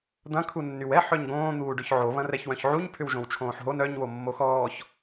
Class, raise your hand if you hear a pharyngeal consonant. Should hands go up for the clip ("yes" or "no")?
yes